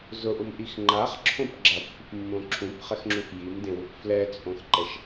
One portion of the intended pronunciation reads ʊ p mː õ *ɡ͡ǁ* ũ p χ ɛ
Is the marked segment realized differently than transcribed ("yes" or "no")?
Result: yes